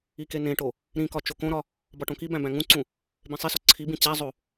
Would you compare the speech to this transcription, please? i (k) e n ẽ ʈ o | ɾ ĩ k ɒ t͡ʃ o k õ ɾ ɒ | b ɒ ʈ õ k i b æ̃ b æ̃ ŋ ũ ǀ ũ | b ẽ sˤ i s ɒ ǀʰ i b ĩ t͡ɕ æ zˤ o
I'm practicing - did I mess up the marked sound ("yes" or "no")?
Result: no